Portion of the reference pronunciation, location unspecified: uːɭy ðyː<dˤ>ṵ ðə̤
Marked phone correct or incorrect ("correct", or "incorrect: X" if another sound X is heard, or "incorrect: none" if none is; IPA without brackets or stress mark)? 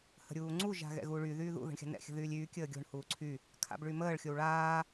incorrect: ð